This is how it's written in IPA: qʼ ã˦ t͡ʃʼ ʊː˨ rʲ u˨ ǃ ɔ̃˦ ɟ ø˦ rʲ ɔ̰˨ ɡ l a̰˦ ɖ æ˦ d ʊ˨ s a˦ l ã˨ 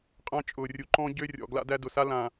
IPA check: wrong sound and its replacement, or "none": ɖ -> d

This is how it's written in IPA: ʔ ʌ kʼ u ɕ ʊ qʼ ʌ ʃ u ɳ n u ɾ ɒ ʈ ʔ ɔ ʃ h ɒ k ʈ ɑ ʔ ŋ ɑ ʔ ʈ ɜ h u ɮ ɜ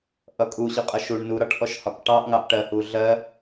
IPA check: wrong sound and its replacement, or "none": none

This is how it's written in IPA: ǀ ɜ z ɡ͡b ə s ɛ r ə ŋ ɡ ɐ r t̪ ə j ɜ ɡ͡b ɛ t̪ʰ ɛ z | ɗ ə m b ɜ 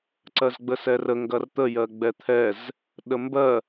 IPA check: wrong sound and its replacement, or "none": none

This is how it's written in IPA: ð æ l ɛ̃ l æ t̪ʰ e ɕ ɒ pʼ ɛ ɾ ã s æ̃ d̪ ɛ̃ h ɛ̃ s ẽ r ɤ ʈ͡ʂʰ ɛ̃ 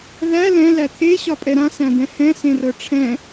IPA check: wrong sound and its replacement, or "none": none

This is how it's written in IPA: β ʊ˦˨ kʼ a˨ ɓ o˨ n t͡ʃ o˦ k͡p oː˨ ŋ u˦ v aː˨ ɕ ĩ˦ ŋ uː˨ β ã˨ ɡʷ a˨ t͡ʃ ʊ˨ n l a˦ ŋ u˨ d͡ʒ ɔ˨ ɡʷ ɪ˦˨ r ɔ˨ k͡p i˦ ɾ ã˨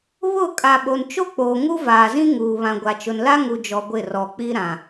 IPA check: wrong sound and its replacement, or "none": ɕ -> z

